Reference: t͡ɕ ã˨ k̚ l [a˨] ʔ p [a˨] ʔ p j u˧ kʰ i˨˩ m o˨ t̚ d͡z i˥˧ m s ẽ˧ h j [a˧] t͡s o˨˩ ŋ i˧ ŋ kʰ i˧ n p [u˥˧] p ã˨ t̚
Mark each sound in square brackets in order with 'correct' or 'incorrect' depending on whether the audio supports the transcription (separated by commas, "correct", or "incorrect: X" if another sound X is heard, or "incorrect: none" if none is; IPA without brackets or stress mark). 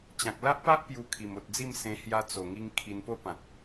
incorrect: a˦, incorrect: a˦, correct, incorrect: o˥˧